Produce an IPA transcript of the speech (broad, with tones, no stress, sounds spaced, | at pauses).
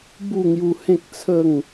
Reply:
b u˥˧ ŋ j u˧ h ẽ˦ k̚ t͡sʰ ə˥˧ ŋ